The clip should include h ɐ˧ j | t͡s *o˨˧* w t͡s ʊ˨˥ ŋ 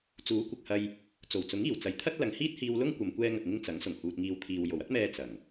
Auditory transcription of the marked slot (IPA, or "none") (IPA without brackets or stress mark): o˨˩